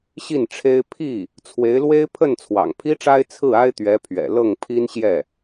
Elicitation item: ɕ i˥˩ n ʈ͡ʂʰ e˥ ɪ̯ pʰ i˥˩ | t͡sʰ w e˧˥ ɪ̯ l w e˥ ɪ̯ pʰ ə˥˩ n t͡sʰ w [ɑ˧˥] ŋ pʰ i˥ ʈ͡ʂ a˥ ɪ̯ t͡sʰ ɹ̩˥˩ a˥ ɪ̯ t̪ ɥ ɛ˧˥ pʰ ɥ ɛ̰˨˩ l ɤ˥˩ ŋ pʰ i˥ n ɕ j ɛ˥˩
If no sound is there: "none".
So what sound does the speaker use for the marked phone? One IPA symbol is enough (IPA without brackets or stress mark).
ɑ̰˨˩